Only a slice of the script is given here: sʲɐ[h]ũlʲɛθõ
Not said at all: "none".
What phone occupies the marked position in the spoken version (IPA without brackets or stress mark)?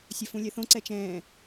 f